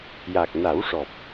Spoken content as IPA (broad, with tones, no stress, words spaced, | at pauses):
ja˨˩k̚na˨˩˦wʂɔ˨˩p̚